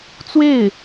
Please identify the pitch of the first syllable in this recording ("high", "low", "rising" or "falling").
falling